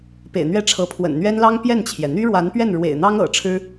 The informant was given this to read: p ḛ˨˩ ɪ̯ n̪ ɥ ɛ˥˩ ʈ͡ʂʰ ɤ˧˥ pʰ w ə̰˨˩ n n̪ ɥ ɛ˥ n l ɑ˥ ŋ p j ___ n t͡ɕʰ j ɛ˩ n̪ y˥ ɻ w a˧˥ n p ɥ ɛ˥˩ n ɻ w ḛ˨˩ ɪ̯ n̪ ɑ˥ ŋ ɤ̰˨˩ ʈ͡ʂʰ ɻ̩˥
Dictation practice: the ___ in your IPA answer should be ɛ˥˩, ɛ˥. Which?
ɛ˥˩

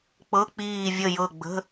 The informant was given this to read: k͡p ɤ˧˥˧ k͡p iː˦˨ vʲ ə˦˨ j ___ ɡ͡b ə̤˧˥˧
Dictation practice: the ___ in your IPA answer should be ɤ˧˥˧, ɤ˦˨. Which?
ɤ˦˨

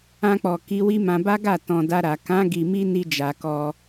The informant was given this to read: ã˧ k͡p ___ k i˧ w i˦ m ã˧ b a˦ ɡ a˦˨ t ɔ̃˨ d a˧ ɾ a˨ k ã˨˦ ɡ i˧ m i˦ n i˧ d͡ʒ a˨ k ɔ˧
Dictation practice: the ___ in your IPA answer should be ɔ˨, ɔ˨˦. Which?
ɔ˨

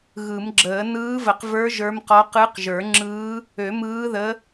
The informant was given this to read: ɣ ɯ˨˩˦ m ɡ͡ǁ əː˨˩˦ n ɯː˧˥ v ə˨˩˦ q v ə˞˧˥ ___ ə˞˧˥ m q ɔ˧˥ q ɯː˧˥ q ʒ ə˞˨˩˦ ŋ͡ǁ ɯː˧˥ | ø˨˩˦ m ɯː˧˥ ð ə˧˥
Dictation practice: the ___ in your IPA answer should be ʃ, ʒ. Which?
ʒ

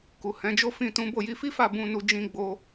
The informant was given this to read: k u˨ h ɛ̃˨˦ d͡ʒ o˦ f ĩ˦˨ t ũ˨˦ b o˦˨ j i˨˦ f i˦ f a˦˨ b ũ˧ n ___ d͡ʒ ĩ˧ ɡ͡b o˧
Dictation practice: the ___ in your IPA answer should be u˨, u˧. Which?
u˧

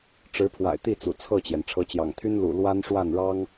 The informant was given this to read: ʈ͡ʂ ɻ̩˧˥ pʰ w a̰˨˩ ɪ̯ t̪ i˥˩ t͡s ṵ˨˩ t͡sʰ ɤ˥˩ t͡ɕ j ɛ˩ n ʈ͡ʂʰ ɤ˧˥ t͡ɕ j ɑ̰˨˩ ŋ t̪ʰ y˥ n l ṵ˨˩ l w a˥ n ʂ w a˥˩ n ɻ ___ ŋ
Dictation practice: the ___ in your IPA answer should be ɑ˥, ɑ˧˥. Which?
ɑ˥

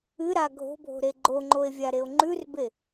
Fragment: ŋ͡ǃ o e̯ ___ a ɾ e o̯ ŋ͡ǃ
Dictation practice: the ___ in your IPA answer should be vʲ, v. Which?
vʲ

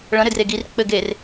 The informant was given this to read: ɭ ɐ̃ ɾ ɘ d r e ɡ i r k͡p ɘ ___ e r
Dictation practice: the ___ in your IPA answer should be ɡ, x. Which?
ɡ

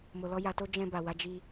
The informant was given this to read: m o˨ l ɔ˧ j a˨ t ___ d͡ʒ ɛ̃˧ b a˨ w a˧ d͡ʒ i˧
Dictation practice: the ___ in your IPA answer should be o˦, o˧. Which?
o˧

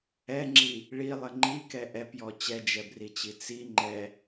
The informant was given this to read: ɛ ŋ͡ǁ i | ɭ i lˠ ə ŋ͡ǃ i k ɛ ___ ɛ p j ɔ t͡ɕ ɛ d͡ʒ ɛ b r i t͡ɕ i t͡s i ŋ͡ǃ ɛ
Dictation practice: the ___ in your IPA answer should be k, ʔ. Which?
ʔ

